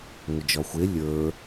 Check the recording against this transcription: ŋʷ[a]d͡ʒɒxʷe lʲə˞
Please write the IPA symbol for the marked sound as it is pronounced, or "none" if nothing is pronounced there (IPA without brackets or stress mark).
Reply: ə